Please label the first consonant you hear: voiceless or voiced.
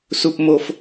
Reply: voiceless